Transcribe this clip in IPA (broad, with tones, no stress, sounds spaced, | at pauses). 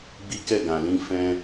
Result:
ɡ͡b i˦ k ɛ˦˨ ɡ ã˨ l ĩ˧ f ɛ̃˧